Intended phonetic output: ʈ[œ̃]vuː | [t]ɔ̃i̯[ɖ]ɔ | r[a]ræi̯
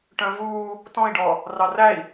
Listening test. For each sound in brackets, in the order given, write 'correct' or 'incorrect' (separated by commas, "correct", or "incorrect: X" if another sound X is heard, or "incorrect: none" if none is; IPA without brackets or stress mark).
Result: correct, correct, correct, incorrect: ɑ